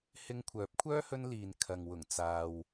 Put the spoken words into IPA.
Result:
h ɪ˧ ŋ kʷʰ œː˨˥ p̚ kʷʰ œː˥ h ɵ˧ n l iː˨ n kʰ ɐ˨ ŋ w ʊ˨˩ ŋ t͡s aː˨ w

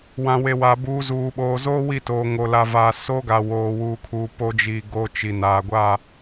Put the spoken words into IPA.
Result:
w ã˨ w e˨ w a˨ b uː˨ z uː˨ ɓ oː˨ z oː˦ w i˦˨ t oː˨ ŋ o˨ l a˨ v aː˨ s o˦ ɡ a˨ w oː˨ w uː˨ kʰ uː˨ p o˦ d͡ʒ i˨ ɡ o˦ t͡ʃ i˨ n aː˨ ɡʷ a˦˨

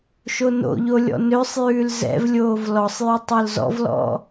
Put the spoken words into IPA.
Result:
ʃ o n o̰ ʎ o lʲ ɔ̰ n ø sˤ j ʉː l z ɛ̰ v lʲ oː v l ɔ sˤ j ʉ tˤ o l z ɔ̰ v l ɔ̰

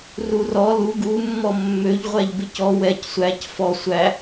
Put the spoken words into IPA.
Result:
r u r ɔ l u ɡ u mː ɔ mː ø ʎ ʁʷ æ ʎ b ɪ c ɔ w ɛ c sʷ æ c f ɔ sʷ æ

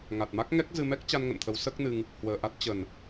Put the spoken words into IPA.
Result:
ŋ a˨˩ t̚ m a˦˥ k̚ ŋ ɛ˦˥ k̚ z ɨ˧ m ɛ˦˥ k̚ t͡ɕ a˧ n ŋ ə̰˧˨ n t̪ʰ ə˨˦ w s əː˦˥ k̚ n ɨ˧ ŋ | h w əː˨˩ ʔ a˦˥ t̚ t͡ɕ ə˨˩ n

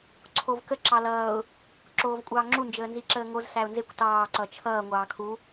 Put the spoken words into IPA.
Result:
ǀʰ o v k ə ǁ ɑ l ʌː ʊ̯ | ǁ oː v kʷʼ ɑː ŋ͡ǁ u n d͡ʒ əː n z i ǁ əː ŋ o z s æ ʊ̯ n z e kʷ t ɑː ǀ ʌ t͡ʃʰ ʌː ŋʷ ɑː kʰ u

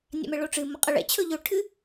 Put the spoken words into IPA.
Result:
nʲ a̰ m ɛ ɭ o ʈ͡ʂ ɨ m ʌ qʼ ʌ ɭ ɛ̰ t͡ɕʰ ɵ ʎ ɵ ʈʰ ɨ

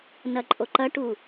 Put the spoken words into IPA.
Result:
n ɐ ǃʼ o ǃ ɐ ʈ u

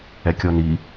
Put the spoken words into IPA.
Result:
ɛ kʲ ɔ n i

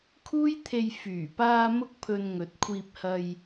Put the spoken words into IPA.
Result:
kʰ uː˥ j t̪ʰ e˧ j f yː˨˩ p aː˧ m ʊ˧ k̚ pʰ ɵ˨ n ŋ ɵ˨˥ t̚ kʷʰ iː˧ p̚ h ɐ˧ j

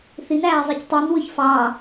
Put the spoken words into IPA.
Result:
θ i n æː zˤ i c tˤ i n w ɯ ç f ɑ

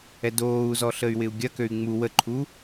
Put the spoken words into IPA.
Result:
ɛ d oː u̯ z ɔ ɬ ə y̯ w ɪ u̯ ɡʲ ɐ k ø y̯ ŋ͡m u w ə ǃʰ u

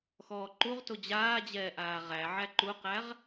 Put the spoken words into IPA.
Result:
x ɔː ǃ u ʁ t o d͡ʑ aː d͡ʑ ɛː ʔ aː ʁ æ ʕ æ ǃ u q æ ʁ

